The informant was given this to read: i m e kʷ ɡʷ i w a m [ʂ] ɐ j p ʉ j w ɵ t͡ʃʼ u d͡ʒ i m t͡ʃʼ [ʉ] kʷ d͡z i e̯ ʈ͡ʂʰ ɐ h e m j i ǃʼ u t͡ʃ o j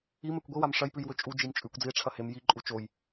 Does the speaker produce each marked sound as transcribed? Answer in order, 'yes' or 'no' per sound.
yes, yes

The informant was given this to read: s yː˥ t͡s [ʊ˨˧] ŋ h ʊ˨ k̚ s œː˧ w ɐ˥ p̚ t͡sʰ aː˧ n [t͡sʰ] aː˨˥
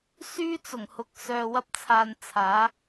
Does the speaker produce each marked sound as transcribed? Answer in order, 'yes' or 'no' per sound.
no, yes

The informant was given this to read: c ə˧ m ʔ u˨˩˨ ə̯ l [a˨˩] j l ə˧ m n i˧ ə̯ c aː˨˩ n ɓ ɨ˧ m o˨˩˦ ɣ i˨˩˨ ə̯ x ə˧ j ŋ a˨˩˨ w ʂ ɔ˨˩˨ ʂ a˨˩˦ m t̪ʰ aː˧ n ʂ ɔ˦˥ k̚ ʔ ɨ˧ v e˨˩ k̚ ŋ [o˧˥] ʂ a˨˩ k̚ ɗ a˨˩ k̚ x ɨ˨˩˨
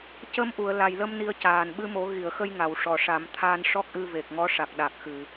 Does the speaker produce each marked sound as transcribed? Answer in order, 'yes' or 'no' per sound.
yes, no

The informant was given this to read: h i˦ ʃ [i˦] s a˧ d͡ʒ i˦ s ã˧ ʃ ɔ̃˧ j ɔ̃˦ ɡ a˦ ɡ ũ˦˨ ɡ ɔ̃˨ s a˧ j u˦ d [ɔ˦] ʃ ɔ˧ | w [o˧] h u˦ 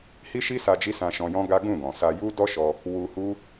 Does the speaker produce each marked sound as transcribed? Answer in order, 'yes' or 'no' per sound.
yes, yes, no

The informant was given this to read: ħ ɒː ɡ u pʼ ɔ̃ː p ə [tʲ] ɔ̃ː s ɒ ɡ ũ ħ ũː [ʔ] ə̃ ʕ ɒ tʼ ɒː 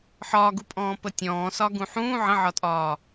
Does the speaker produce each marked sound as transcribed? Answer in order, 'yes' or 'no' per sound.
yes, no

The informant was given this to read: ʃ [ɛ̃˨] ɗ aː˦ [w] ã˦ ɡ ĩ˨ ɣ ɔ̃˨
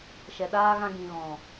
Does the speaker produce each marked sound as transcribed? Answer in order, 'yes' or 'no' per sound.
no, no

